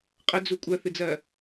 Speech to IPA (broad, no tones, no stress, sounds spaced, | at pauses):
qʼ ə d͡z u kʷʼ ɜ θ ɨ d͡z ɜ